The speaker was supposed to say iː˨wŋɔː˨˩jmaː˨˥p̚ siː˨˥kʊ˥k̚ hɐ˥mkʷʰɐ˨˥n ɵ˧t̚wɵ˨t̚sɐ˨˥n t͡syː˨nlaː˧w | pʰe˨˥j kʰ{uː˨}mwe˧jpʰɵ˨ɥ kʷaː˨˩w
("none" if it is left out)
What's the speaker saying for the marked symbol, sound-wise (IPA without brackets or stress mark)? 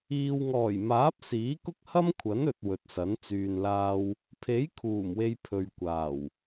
uː˨˩